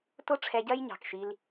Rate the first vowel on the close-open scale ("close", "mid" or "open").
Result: close